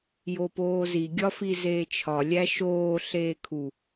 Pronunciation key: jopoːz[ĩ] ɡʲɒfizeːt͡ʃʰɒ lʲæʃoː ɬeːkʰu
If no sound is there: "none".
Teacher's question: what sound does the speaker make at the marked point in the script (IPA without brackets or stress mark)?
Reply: i